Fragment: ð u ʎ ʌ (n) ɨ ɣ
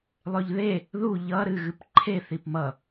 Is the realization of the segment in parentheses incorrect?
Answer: yes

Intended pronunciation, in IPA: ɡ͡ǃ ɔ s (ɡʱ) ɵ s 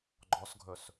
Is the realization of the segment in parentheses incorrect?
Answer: no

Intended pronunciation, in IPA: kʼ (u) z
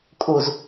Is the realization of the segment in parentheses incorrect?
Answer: no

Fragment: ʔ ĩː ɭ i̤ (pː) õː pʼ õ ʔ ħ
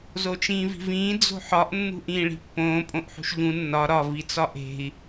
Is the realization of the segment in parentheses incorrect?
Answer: no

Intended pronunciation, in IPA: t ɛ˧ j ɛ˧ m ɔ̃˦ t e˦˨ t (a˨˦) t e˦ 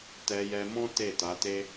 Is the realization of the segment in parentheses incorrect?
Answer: no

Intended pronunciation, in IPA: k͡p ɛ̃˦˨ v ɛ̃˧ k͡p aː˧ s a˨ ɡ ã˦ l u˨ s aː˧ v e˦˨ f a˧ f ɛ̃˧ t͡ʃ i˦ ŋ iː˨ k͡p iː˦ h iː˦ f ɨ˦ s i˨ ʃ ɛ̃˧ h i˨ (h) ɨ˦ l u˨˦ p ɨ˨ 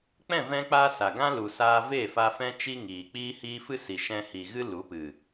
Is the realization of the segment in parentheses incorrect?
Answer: yes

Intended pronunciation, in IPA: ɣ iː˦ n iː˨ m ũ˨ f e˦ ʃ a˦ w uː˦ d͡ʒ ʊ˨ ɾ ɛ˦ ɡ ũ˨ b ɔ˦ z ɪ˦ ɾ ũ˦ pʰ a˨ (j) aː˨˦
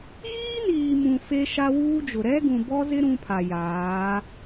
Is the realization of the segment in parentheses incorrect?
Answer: no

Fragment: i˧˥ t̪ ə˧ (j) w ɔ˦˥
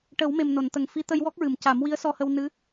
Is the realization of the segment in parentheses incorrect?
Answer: no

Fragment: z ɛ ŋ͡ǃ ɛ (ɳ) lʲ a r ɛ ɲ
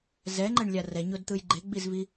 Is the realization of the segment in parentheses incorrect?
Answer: no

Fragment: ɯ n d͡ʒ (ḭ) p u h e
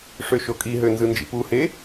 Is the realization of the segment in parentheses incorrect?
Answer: no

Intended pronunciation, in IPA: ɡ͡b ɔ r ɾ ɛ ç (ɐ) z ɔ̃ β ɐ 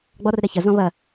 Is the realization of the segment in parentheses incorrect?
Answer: no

